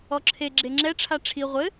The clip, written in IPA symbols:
ɔǁʰe ɡ͡ǁeŋ͡ǁɛ ʈ͡ʂʰaʈ͡ʂʰi ʁʷɘ

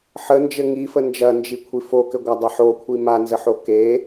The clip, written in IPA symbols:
ħənd͡ʒɘ ŋifə nd͡ʒɐnd͡ʒikʷʰi fokɘɡʷadˤɐ ħokʷʰi manzəħo ke

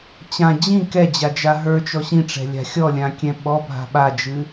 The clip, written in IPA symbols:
t͡ɕã d͡ʑĩ kɛd͡ʑad͡ʒa ɦə˞t͡ʃɔ ɕĩʈ͡ʂɛ̤lʲa̤ xʲɔlʲãkʲɛ̃ ɓɔbʱa̤ ɓad͡ʒɨ

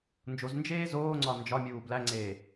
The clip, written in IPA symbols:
nd͡ʒoz nd͡ʒeːzoːŋ͡ǀɒ nd͡ʒɒmʲuː blæŋ͡ǀeː

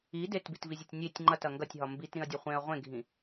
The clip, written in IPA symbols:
i detbitvizʲɐtʲ nʲetʲ ŋ͡ǃɐtɐ ŋɡɐtʲɦɒ mbitɾĩɐ̯dʲɐ χʷẽɐ̯ ʁʷẽɡʱĩ

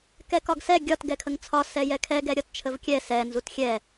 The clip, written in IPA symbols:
kɛkɒɡsɛ ɡʲɒt ɡɛkʰəŋt͡sʰɒ sɛjɛkʰɛ ɡɛɾʲɒtt͡ʃʰəvkʲɛ sɛ nzutxʲɛ

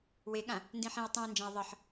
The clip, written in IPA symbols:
weɠã | ndĩħĩo̯ tˤĩe̯nd͡ʒãe̯ ðˤʌħ

